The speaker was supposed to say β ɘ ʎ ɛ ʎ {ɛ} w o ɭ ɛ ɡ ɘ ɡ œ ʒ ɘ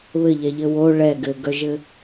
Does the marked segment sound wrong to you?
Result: yes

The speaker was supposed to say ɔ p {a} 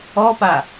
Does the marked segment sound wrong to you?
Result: no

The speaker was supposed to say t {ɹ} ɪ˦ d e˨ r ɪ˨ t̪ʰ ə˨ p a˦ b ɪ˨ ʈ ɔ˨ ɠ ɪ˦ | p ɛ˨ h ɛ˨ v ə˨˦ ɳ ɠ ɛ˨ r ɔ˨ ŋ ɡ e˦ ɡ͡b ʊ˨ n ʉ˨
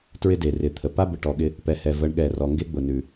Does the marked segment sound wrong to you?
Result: no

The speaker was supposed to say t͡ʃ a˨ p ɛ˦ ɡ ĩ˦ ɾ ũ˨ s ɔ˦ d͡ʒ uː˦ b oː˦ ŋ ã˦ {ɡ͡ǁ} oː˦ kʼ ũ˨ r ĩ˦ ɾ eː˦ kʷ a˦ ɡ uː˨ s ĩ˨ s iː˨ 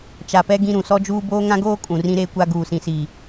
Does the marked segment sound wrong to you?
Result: yes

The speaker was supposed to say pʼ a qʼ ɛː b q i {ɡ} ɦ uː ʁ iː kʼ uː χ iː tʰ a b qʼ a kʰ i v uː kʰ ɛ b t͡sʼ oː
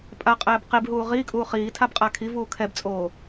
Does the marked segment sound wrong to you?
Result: yes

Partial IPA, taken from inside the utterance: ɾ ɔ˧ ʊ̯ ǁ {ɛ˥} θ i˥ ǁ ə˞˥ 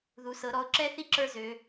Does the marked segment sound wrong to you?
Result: no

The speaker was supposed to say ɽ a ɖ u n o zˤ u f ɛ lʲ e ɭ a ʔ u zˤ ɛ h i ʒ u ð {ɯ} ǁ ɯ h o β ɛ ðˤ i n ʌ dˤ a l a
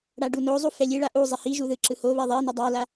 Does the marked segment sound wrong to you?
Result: no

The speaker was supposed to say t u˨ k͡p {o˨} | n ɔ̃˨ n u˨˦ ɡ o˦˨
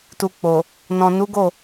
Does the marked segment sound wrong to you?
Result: no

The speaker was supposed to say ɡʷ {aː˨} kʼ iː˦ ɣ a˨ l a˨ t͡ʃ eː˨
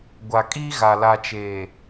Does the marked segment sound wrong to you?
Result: yes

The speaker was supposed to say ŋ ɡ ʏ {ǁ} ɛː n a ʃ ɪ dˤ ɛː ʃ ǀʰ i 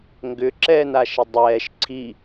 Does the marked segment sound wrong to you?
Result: no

